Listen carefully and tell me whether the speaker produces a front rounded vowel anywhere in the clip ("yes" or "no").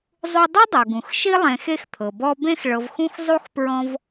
no